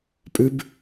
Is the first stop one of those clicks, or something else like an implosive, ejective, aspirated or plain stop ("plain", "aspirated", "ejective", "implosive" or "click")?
ejective